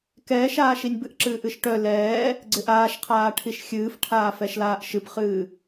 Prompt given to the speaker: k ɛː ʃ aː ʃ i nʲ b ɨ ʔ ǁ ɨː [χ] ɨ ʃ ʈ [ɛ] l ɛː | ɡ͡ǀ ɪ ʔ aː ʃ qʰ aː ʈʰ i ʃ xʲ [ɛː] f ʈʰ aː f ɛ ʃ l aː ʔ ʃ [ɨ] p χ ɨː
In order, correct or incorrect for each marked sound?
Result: incorrect: ʔ, incorrect: œ, incorrect: ɨː, correct

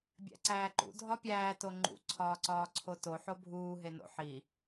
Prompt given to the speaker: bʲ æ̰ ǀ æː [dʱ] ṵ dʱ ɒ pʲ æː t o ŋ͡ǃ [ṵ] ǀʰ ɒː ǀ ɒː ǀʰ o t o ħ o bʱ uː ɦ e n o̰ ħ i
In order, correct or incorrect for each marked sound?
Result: incorrect: ǃ, correct

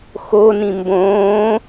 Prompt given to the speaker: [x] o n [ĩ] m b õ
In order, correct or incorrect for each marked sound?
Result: correct, correct

